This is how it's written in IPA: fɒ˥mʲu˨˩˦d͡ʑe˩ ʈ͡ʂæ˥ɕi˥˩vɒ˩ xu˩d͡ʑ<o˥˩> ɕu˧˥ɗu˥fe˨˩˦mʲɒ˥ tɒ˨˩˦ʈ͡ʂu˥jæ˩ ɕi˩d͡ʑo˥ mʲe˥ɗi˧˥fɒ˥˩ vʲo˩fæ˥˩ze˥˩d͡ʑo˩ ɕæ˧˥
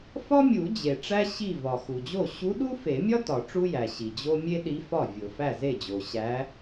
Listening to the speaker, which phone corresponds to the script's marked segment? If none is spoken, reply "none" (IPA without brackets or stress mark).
o˥˩